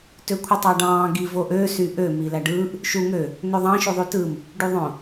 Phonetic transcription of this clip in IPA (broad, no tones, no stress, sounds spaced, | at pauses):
t ø kʷʰ ɯ tˤ ɑ ɖ ɑ̃ː ɡ i v o ʔ ø s y ʔ ø m i l æ ɖ ɯː ʔ | ʃ u ŋ ø | n ø ðˤ ɑ̃ ʃ u ðˤ y t ɯ m | ɖ y ðˤ õ